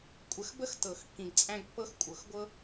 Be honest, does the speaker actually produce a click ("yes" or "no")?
no